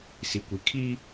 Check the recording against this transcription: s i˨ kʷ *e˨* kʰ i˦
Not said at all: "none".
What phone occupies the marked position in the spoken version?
i˨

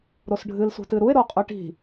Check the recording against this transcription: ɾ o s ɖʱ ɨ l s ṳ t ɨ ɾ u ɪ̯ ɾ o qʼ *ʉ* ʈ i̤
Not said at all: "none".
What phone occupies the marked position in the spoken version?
ʉ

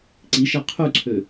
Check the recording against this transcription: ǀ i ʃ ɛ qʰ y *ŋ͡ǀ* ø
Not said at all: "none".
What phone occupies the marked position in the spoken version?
ǀʰ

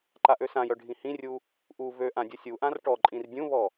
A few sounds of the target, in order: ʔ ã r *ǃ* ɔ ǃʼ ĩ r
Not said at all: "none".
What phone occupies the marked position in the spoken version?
ʈ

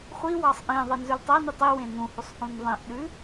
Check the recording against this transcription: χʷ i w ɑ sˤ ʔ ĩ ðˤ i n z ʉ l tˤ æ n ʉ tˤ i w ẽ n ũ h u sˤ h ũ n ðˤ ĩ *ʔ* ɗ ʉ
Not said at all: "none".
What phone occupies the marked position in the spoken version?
ʔ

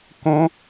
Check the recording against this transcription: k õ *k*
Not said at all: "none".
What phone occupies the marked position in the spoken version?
none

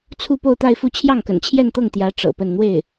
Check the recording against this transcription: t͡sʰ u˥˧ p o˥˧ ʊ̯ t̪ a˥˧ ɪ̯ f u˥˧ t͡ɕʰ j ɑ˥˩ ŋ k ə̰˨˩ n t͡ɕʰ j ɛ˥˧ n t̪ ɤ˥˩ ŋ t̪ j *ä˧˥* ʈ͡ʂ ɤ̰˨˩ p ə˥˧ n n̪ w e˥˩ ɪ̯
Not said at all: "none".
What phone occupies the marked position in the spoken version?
ä˧˥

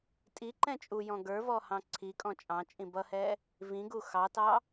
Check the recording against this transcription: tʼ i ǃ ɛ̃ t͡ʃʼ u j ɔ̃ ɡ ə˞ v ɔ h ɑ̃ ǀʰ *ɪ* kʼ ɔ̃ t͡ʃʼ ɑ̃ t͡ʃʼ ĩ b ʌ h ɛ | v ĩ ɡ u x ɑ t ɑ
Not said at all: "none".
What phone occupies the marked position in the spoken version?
i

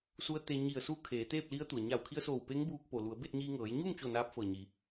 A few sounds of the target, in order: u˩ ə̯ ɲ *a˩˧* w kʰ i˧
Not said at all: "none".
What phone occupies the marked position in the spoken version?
a˧˩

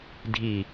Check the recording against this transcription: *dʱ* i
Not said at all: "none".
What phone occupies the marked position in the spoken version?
dʱ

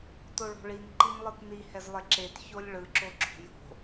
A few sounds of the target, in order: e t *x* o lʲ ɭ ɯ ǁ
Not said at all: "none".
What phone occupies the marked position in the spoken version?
ç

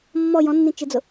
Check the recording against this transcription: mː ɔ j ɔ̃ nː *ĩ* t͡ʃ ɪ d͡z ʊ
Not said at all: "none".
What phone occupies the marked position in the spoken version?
ĩ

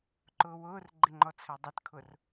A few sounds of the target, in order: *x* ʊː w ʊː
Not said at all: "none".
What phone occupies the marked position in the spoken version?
ǃ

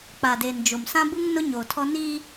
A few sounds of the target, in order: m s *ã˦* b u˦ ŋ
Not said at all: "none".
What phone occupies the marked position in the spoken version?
ã˦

